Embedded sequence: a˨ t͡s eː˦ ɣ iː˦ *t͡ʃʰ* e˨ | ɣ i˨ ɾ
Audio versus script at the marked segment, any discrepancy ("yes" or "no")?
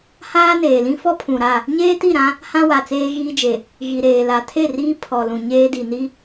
yes